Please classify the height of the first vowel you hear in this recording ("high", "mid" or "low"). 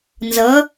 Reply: mid